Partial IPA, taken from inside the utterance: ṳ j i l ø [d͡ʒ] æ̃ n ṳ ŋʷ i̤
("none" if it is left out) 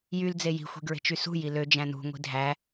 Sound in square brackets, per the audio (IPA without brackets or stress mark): d͡ʒ